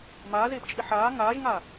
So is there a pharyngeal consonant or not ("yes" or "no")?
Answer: yes